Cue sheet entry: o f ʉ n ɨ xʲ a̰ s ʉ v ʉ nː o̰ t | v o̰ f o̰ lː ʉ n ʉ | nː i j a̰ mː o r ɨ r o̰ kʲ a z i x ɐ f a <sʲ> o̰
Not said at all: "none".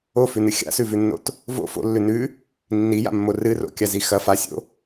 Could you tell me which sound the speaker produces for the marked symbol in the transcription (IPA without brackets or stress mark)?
sʲ